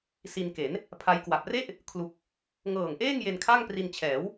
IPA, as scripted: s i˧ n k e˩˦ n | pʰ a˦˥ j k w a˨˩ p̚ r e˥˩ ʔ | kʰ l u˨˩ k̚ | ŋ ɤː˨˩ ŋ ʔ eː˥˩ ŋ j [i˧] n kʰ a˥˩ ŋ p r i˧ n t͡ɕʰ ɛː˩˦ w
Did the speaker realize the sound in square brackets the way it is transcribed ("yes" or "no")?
no